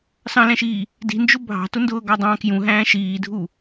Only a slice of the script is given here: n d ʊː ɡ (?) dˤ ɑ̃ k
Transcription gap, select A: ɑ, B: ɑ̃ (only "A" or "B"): A